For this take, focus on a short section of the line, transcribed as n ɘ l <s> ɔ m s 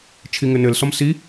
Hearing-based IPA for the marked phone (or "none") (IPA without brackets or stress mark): s